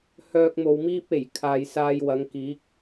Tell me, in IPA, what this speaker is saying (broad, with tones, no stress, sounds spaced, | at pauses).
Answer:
h œː˧ k̚ m o˨ w m iː˥ p̚ e˨˩ j kʰ aː˨ j s aː˧ j w ɐ˨˧ ŋ k iː˨˥ k̚